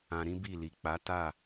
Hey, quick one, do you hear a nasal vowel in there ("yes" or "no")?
yes